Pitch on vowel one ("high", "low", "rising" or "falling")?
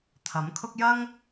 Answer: rising